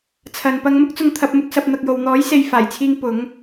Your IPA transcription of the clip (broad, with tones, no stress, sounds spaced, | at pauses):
t͡sʰ ɐ˨ n p ɐ˧ ŋ m ʊ˥ k̚ t͡s ʊ˧ ŋ t̪ʰ ɐ˧ p̚ m ʊ˥ k̚ s ɐ˨˥ p̚ n̪ ɐ˧ k̚ j o˨˧ w n̪ ɔː˨˥ j s e˨˧ j f aː˨˩ j t͡sʰ iː˧ ŋ p ʊ˨˥ ŋ